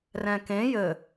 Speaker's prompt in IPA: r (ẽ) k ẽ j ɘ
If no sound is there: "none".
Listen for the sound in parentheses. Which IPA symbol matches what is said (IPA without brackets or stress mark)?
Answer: ɛ̃